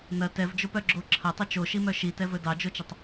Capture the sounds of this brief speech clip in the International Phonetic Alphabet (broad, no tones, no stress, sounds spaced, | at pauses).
n ɐ t ɛ v d͡ʒ o p œ ɡ͡ǁ o ǁʰ ɐ tˤ ɵ t͡ʃ o ʃ i m œ ʃ i t ɛ v ɵ d ɑ d͡ʒ o t͡ʃ ə tˤ